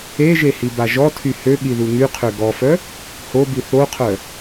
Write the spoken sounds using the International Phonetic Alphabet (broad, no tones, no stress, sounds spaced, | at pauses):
e ʒ e h i b a ʒ ɔ tʰ y h ø ɠ i ð u ŋ y qʰ ø ɡ ɔ f œ | h o b i θ o qʰ œ